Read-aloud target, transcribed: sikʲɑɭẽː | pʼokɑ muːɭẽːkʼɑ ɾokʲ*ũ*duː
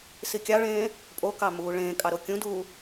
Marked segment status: correct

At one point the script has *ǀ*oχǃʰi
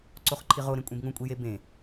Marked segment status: correct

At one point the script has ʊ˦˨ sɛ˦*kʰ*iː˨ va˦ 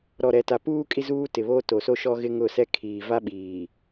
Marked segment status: correct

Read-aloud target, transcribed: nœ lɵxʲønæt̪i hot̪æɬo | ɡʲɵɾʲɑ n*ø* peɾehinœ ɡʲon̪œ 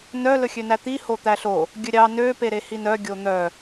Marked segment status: correct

